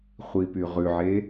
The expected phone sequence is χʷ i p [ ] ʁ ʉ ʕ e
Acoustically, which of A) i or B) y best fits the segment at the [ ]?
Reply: B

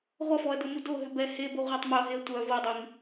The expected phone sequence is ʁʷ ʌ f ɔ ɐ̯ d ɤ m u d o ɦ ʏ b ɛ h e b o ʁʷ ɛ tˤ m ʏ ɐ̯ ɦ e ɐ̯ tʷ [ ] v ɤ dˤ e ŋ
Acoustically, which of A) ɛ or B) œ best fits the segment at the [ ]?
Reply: B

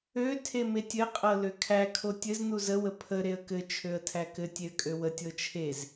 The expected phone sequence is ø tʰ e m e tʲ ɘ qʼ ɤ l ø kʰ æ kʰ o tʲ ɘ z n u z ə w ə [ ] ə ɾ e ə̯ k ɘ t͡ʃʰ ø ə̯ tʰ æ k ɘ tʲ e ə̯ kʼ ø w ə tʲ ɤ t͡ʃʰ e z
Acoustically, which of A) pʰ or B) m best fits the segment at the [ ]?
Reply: A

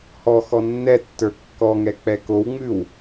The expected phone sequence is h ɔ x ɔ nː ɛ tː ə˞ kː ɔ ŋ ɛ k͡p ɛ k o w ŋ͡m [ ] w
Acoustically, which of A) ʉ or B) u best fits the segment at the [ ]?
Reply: A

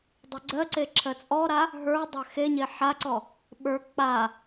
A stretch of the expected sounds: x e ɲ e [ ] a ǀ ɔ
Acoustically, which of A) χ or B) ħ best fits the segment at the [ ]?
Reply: B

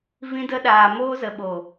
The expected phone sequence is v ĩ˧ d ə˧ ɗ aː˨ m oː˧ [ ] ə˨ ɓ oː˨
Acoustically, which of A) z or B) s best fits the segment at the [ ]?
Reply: A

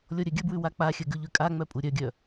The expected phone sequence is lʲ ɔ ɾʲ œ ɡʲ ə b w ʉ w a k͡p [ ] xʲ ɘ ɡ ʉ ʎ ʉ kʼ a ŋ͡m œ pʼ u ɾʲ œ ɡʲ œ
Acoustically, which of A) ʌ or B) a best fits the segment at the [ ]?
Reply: B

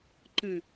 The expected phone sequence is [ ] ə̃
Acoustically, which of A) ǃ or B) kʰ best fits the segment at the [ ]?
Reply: A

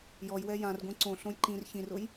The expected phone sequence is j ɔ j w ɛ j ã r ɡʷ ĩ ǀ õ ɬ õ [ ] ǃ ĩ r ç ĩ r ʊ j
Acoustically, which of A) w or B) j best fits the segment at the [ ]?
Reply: B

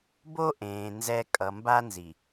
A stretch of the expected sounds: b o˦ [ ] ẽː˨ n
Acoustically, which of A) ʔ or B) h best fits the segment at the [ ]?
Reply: A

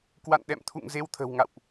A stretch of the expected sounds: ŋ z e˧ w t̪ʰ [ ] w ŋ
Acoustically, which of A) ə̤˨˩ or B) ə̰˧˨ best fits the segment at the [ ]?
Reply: A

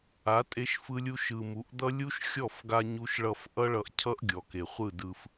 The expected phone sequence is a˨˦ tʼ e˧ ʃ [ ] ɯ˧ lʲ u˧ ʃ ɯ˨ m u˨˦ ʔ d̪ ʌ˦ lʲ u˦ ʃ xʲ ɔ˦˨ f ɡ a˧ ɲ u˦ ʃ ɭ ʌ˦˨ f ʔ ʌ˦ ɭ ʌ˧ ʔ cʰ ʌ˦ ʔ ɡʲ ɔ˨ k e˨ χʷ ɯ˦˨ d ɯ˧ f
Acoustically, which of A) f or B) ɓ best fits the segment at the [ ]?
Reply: A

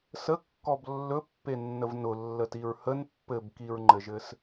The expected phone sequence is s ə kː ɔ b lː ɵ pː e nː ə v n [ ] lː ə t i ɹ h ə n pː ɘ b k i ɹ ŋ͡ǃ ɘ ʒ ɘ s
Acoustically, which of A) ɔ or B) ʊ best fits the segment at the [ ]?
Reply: B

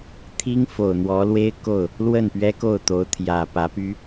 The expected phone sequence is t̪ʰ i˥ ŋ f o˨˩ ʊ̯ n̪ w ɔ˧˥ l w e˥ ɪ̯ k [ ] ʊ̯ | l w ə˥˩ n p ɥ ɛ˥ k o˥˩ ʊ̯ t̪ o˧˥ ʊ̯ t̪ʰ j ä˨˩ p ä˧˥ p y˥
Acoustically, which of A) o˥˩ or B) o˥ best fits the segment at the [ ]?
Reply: A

